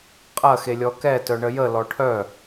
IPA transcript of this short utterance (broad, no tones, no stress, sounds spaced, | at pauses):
qʼ ɐ x e lʲ ɔ k ɛ t œ ɳ ə j ə l ɔ ʈʰ œ